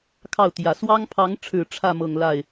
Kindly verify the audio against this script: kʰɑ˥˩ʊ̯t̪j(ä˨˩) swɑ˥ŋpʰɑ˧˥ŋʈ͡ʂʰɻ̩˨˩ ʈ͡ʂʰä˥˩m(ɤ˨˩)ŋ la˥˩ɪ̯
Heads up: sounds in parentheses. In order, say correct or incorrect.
correct, correct

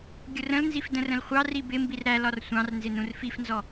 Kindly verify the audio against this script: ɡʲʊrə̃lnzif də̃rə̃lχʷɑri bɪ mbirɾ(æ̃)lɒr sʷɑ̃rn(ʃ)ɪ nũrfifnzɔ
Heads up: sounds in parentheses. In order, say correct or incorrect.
incorrect: æ, incorrect: z

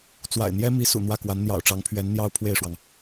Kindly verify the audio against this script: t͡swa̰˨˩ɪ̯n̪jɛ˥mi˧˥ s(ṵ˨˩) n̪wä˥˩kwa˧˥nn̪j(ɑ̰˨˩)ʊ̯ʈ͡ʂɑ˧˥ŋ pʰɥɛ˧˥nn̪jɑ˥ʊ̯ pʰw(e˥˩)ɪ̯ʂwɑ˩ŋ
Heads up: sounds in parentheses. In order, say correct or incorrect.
correct, correct, correct

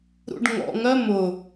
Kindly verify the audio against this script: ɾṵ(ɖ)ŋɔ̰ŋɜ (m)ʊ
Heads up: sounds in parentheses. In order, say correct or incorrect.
correct, correct

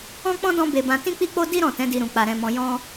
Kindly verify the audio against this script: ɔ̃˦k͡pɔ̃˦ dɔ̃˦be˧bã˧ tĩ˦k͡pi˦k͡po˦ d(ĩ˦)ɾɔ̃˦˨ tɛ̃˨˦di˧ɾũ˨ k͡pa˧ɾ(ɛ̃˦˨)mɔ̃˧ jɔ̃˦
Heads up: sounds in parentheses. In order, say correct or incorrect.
incorrect: i˦, incorrect: ɛ̃˧

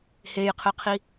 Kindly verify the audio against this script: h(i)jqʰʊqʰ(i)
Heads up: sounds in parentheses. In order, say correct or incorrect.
incorrect: e, correct

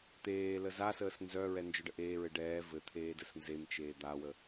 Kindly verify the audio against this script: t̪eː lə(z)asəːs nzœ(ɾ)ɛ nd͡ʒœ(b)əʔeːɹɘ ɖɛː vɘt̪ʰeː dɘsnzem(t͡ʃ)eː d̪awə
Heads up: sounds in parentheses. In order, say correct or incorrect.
correct, incorrect: ɹ, incorrect: ɖ, correct

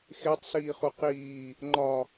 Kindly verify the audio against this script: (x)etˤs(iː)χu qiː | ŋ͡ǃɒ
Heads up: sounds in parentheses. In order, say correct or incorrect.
correct, correct

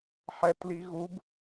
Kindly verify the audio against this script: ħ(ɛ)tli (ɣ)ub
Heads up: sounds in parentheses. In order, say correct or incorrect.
correct, correct

